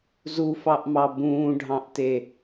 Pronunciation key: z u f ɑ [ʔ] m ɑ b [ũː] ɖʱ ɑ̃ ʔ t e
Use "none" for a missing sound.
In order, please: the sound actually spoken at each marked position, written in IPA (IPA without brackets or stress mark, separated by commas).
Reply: ʔ, ũː